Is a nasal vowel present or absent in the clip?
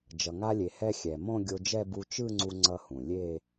present